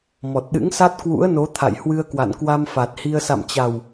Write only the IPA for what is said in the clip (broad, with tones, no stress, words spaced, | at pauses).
mɔ˨˩t̚ɗɨ̰˧˥ŋsa˦˥t̚ kwṵ˧˥ə̯no˨˦ t̪ʰa̰˧˨jhwɨ˧ə̯ kwa̰˧˨nkwa˧m fa˨˩t̚hi˧ə̯ sa̰˧˨mt͡ɕa˨˩w